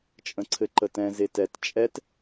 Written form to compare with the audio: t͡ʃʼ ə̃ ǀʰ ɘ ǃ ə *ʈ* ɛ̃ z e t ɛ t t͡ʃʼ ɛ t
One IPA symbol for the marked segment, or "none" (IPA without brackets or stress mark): t